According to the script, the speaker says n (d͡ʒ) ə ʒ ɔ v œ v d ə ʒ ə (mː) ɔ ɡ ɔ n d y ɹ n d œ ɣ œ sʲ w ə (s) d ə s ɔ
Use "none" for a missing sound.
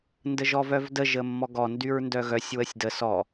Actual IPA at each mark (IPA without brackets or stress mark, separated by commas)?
d, mː, sʲ